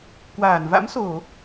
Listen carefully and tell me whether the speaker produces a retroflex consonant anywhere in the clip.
no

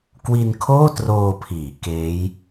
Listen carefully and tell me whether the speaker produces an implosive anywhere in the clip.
no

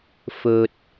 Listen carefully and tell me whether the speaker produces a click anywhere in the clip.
no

